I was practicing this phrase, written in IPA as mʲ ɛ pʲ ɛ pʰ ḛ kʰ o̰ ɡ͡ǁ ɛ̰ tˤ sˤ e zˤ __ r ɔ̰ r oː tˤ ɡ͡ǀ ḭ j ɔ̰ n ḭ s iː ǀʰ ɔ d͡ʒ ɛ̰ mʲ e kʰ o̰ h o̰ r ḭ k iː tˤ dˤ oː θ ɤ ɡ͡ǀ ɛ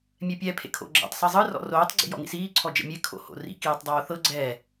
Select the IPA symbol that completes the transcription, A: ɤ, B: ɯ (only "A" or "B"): B